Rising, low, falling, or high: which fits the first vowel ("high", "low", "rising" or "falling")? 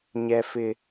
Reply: low